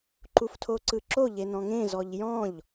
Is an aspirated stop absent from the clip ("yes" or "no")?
no